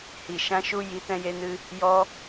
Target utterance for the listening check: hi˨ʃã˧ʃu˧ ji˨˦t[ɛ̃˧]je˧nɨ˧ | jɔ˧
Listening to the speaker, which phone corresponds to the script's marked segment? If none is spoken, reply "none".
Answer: ɛ̃˧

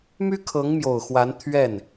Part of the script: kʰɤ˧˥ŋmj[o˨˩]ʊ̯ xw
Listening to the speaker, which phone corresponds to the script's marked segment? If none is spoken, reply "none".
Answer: o˨˩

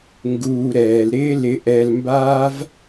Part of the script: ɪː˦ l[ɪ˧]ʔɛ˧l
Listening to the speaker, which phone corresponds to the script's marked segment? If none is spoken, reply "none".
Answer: ɪ˧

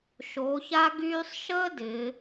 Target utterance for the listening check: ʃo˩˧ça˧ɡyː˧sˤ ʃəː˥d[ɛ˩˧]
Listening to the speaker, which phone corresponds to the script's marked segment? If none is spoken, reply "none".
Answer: ɪ˩˧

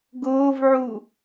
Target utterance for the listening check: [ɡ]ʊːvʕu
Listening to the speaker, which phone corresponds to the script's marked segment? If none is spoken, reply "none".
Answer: ɡ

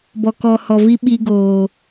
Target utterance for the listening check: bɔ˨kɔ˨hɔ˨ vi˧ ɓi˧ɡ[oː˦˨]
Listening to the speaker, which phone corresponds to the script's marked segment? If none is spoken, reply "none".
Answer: oː˨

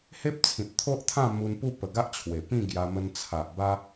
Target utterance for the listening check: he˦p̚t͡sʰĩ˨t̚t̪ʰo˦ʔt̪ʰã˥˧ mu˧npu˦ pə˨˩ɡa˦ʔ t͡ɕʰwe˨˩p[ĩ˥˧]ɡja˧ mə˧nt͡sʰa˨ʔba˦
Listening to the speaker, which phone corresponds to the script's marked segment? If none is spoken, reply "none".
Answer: ĩ˥˧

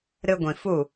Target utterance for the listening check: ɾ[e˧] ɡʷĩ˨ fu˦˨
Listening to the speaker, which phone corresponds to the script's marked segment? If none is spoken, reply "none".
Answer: ɨ˧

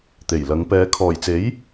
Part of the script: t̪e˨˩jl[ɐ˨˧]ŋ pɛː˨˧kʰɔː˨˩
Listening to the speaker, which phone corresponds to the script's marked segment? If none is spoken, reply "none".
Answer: ɐ˨˧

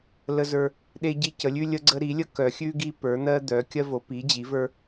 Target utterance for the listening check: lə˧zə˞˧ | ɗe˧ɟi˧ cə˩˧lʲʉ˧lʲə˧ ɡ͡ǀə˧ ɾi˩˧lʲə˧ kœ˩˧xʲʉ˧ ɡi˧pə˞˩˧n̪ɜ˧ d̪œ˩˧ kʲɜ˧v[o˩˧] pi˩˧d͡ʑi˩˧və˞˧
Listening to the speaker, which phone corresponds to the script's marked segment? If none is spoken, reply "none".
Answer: o˩˧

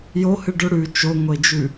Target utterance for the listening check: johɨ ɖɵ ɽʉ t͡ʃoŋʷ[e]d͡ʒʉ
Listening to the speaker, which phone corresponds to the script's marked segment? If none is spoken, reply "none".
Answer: e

